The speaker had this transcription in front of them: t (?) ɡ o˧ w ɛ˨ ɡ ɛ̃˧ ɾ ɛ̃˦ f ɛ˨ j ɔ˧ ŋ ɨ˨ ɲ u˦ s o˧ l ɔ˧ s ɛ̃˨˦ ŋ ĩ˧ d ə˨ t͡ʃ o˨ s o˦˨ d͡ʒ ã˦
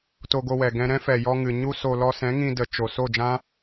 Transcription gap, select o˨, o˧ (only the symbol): o˧